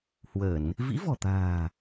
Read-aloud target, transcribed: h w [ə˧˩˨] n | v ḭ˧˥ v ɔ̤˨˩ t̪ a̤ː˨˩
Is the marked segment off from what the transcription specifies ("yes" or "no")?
no